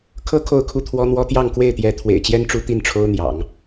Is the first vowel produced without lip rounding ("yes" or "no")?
yes